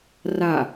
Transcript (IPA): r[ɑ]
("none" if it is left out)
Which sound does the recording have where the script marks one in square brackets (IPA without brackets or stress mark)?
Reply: a